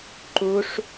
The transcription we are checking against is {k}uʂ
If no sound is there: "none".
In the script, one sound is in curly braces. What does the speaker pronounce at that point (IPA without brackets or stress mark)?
ǃ